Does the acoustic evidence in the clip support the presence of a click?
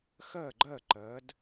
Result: yes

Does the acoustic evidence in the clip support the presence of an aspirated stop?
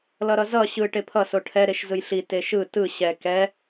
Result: yes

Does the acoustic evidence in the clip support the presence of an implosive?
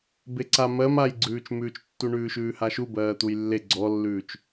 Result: no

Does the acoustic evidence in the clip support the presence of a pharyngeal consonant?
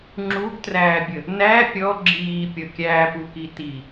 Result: no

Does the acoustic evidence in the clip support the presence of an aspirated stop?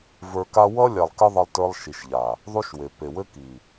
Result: no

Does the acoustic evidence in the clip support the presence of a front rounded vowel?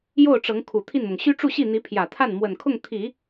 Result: yes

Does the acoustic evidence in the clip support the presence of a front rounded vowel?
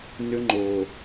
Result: yes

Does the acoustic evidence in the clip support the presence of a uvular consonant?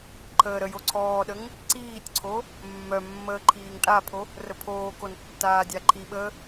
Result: no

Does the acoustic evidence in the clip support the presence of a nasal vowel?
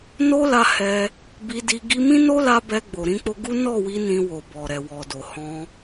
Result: yes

